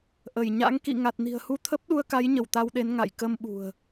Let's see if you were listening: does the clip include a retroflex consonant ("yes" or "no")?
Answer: no